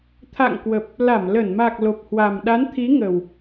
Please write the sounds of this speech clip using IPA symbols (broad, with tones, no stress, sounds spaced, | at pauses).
t̪ʰ a̰˧˨ ŋ k w ə˨˩ p̚ | l a˧˩ m l ə˧˩ n m a˨˩ k̚ l o˨˩ p̚ h w a˨˩ m ɗ a˨˦ n t̪ʰ i˨˦ ŋ ə˨˩ w